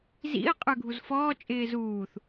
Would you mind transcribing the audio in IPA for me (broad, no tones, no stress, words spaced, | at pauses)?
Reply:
zḭə̯ qʼə˞ɡʱuzfɔː t͡ʃʼɪːzuːθ